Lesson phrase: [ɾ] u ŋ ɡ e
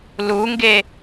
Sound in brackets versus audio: incorrect: l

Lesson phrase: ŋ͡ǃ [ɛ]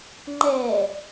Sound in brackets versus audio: correct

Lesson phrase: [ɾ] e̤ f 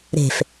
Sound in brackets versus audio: correct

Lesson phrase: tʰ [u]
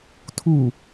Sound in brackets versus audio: correct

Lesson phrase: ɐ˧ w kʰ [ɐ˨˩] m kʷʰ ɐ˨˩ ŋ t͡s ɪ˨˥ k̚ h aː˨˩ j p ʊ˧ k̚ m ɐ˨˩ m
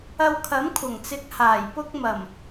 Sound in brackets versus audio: incorrect: ɐ˨˥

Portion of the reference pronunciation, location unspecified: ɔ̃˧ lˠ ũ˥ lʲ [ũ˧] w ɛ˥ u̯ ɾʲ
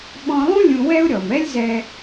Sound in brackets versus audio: correct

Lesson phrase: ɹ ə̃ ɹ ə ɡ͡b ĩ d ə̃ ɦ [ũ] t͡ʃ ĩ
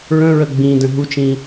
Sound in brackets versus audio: incorrect: u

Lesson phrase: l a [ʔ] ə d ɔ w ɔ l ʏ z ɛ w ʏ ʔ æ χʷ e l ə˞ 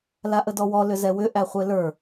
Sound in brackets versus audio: correct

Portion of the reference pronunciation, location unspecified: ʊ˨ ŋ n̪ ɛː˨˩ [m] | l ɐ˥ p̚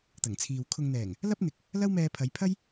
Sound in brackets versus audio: incorrect: ŋ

